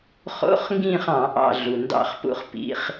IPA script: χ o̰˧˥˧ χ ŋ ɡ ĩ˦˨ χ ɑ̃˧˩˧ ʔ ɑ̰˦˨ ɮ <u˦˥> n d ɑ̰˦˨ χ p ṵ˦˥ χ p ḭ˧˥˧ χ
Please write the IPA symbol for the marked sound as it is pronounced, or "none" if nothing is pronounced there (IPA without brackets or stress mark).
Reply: u˩